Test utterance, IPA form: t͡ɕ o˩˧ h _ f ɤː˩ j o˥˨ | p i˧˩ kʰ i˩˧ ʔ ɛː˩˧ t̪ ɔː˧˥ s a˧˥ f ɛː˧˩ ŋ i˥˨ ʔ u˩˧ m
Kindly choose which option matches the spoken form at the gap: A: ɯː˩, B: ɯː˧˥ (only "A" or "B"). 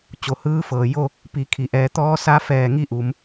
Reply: B